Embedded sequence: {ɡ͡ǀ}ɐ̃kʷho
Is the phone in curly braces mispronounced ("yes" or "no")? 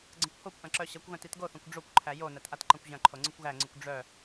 no